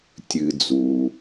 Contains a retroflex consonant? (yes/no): no